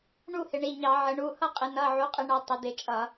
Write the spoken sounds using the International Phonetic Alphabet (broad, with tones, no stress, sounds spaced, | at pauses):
ɳ u˥˨ h ɪ˩˧ ɳ i˩˧˩ ɲ ɑ˧˩˧ ʕ ə˩˧ ɳ u˩˧˩ h ʌ˥˨ qʼ ɪ˩˧ n ʌ˩˧˩ ʕ u˩˧ qʼ ɪ˧˩˧ ɳ ʌ˩˧ tˤ ɪ˩˧ d̪ ɪ˧˩˧ t͡ʃʼ ʌ˧˩˧